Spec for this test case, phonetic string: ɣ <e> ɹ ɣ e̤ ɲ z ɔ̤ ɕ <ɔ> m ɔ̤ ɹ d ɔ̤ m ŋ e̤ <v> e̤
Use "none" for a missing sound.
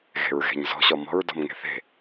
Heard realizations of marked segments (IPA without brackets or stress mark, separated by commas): e̤, ɔ, θ